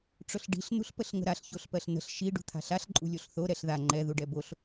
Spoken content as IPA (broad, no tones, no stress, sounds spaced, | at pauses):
ʈ͡ʂ ʊ ɬ ɖ i̤ ɬ n ṳ ɬ p ə ɬ ŋ ə̤ ɾ a ɬ ç o ɬ p ɜ ɬ n ə̤ ɬ ʃ i ɖ ṳ t̪ʰ a̤ ɬ a ɬ ǃʼ ṳ lʲ o ɬ θ o ɾ ɛ ɬ ð a ŋ͡ǃ ɛ ð u ɖ ɛ b o ɬ